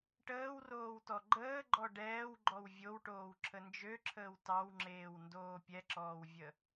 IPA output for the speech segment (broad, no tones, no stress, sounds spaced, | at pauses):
ʈ əː w r oː w t ɔ ɡ͡ǃ əː ɡ͡ǃ ɔ ɖ ɛː w ɡ͡ǃ ɔ w vʲ o w ʈ oː w ǁʰ ə n d͡ʒ ø ǁʰ əː w t ɑ w ŋ͡ǁ eː w n d oː pʲ ɛ ǁ ɔː w vʲ ə